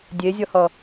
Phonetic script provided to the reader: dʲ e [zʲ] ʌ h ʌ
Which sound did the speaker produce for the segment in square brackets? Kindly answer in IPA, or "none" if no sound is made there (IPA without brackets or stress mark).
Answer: zʲ